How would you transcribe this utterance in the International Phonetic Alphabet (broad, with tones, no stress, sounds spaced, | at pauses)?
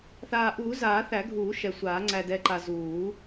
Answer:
θ aː˨˩ ʔ uː˨˩˦ z aː˨˩˦ θ æ˨˩˦ ɡʱ uː˨˩˦ ʃ ɛ˨˩ sʷ aː˨˩˦ ŋ͡ǀ æ˨˩ d ɛ˨˩ ǃ a˨˩ z uː˨˩˦